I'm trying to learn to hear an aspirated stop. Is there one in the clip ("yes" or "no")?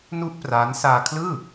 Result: yes